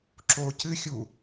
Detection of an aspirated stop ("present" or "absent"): absent